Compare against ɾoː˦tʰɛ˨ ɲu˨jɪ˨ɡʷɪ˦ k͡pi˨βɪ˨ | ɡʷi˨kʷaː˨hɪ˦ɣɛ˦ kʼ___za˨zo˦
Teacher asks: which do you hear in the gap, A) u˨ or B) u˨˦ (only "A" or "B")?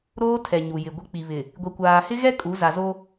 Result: B